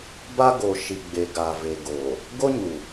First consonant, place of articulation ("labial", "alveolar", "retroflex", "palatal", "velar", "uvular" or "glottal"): labial